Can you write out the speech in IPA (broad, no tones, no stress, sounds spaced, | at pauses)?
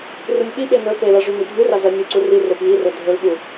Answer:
r u nʲ ɓ i ɓ e n ɵ p e l a ʐ ʉ n i dʱ ʉ r a z ɐ nʲ u ǀ u r i r e p j i r ɵ dʱ ɵ l ɓ u